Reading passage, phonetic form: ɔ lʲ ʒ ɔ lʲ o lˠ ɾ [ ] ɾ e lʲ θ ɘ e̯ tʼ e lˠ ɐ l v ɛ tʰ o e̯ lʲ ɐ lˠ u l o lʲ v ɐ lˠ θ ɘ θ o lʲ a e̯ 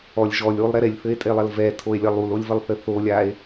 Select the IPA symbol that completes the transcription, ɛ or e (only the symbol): ɛ